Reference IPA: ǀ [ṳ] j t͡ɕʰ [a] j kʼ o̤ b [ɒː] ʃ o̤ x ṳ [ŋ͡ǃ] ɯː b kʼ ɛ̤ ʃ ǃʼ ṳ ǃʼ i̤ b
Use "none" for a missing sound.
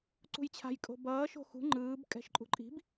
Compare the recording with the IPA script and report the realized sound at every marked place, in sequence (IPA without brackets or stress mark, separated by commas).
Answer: ṳ, a̤, ʌː, ŋ͡ǃ